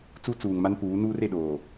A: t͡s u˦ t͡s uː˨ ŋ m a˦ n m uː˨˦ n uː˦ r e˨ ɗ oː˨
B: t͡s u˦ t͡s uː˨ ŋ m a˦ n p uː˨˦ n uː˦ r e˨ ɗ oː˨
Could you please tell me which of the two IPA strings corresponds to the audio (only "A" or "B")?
B